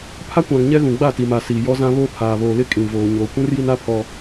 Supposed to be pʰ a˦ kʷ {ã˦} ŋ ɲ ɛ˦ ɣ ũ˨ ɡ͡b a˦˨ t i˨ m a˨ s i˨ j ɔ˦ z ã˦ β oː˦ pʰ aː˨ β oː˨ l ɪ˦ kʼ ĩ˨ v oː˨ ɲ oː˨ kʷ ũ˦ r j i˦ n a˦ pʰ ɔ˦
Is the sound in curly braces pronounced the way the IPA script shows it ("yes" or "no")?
no